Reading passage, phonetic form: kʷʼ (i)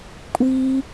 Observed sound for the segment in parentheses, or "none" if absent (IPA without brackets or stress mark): i